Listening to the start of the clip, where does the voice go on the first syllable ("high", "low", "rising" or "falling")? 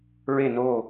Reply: falling